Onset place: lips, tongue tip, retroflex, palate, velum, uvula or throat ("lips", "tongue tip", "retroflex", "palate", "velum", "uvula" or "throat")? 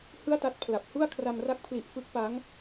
throat